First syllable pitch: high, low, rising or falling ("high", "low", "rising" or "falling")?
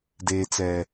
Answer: low